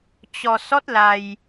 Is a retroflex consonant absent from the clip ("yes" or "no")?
yes